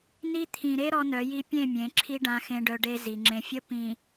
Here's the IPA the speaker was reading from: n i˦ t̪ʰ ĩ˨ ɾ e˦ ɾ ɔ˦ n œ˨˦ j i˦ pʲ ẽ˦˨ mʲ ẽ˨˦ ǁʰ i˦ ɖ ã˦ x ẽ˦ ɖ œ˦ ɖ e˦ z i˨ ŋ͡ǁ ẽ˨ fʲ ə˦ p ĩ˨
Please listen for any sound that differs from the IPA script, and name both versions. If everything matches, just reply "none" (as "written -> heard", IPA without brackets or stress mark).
none